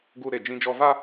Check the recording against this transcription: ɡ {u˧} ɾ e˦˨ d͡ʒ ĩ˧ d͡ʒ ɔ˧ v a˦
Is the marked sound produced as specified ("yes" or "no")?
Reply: yes